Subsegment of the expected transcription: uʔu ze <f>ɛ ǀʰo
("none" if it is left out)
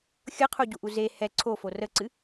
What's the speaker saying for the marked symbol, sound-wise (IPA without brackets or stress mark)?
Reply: h